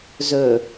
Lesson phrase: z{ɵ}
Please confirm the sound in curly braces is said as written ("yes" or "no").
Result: yes